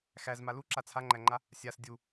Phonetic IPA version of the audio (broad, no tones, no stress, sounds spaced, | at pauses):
x æ z m a l u ǁ a t͡sʰ a ŋ͡ǃ æ ŋ͡ǃ a | sʲ a s dʲ u